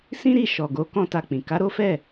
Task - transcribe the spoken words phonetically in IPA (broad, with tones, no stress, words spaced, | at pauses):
sĩ˦ɾi˦˨ ʃɔ˨ɡo˨˦ kɔ̃˦ta˧k͡pĩ˨ ka˨˦ɾo˦fɛ˦˨